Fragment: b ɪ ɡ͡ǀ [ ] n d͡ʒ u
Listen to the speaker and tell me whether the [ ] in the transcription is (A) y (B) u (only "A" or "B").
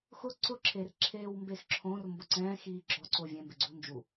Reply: B